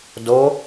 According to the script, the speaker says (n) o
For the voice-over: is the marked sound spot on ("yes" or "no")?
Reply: no